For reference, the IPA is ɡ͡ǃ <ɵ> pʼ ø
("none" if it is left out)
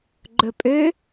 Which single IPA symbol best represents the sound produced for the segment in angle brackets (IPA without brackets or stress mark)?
ɵ